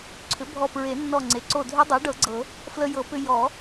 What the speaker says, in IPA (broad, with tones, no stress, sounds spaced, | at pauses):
ǀʰ ʏ˩˥ bʱ ɔ˧˩ p ɹ e˨˩˦ nː ɔ˧˩ ŋ͡ǀ e˩ ǀ o˧˩ dʱ ʏ˦˥ dˤ o˩˥ ɖ ɤ˨˩˦ ɡ͡ǀ ɤ˨˩˦ | f l ə˧ j ɤ˨˩˦ p ʏ˧ j ɔ˨˩˦